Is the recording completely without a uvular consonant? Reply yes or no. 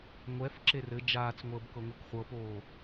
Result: no